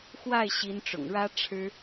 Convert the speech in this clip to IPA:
x w a˥˩ ɪ̯ ɕ i˧˥ n ʈ͡ʂ ʊ̰˨˩ ŋ ɻ ä˥ ʈ͡ʂʰ ɻ̩˥

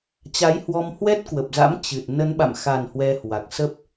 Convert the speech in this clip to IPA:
t͡ɕ a˨˦ j h w ɔ˧ m h w ɛ˦˥ t̚ k w ə˨˩ p̚ z a̰˧˥ m t͡ɕ ɨ˨˩ t̚ n ə˨˦ n ɓ a̰˧˨ m x a˨˩ n h w ɛ˧ h w a˨˩ k̚ s ə˦˥ p̚

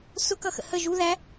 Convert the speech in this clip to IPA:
s ʊ k ʌ x ə̰ h ə ʒ u ð æ

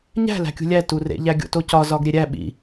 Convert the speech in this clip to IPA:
ɲ æ̤ l æ̤ kʲ ṳ lʲ æ t u r ḛ ʎ æ ɡʲ o̰ t o c ɒ z ɒ ɡ ɾʲ e ɾʲ æ ɓ ḭ

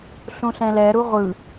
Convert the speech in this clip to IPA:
ɬ ũ ɬ ɛ̃ l ɛ ɾ u ʁʷ ɯ

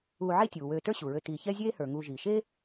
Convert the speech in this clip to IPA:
uː˨ ʕ i˦ tʲ uː˩ w øː˨ t ə˞˦ ɕ u˩ ɹ ø˨ t iː˨ ç ɛ˥ zʲ eː˦ h ə˞˩ ŋ uː˨ ʒ iː˩ ʃ eː˥

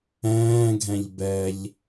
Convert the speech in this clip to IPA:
ɛ̃ː ɡʱ ɛ̃ ʎ b ɛ ʎ

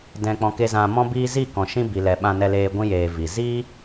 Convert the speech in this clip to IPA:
d ɛ̃˨ k͡p ɔ̃˨ k e˨ z ã˨ m ɔ̃˧ b iː˧ z i˦˨ k ɔ̃˨ ʃ ĩ˧ b i˨ l ɛ˨ ɓ ã˧ n ɛ˧ l eː˧ ɡʷ ĩ˧ j eː˨ v i˨ z iː˦

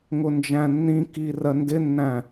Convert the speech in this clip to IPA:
ŋ ʊ n d͡ʒ æ̃ nː ĩ k i r ɜ n d ɪ nː æ̃

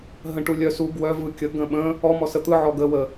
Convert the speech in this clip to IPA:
ɦ ə̃ ʈ u lʲ œ s u ɡ w œ v ɯ kʲ ə ɡ ə̃ ɓ ə̃ | ɔ m ɔ s ə t̪ ɯ ʕ ɔ ɡ ə w ə

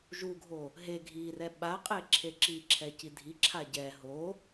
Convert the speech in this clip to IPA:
ʒ u ɡʱ o | ɦ e ɡʱ i r ɛ ɓ a qʼ e ǁʰ e ǁ i ǁʰ ɛ c i dʱ i ǁʰ a ɟ ɛ ɦ o

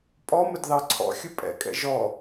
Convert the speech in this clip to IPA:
pʼ ɔ m ə d ð ɑ ǀʰ ɔ̰ xʲ ʊ pʼ ɛ̰ kʼ ɛ̰ ʒ ɔ

